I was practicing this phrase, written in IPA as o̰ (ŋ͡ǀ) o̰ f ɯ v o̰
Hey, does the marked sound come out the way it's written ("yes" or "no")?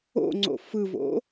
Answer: yes